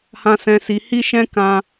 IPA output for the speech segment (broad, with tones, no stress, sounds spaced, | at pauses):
h ã˧ s ɛ̃˧ s i˧ h i˦ ʃ ɛ̃˦ k ã˦